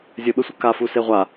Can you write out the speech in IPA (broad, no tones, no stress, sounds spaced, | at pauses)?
zʲ ɘ ɓ ɘ sʷ ɘ k a f u s e ʁʷ a